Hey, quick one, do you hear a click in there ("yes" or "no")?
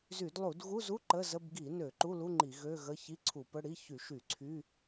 yes